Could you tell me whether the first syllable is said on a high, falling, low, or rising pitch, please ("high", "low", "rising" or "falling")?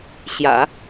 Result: low